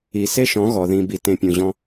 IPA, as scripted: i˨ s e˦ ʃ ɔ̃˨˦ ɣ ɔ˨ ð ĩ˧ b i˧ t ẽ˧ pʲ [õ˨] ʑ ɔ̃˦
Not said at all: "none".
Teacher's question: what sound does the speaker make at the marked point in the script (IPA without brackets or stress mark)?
ũ˨